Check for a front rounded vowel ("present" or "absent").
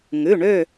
present